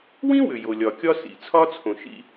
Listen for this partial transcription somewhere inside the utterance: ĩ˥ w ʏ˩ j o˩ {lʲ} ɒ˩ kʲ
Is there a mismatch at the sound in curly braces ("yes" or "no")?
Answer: no